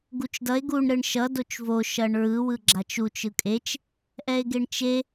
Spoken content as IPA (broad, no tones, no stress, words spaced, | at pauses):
ɡut͡ʃdʌe̯ ɡuɳ ɾɯɳʃʌ dot͡ʃvo ʃʌɳɹɯ wɯɡ͡ǁat͡ʃu t͡ʃɯkʼet͡ʃ | ʔɛe̯ɡeɳt͡ʃe